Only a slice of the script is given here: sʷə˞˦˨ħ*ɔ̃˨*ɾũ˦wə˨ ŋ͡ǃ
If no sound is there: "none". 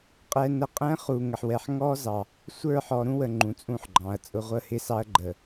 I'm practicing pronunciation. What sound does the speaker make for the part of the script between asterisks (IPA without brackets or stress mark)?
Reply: ɔ˨